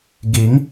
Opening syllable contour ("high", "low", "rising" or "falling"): rising